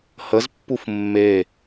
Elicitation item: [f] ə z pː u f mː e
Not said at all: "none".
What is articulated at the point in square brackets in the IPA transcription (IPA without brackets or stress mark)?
h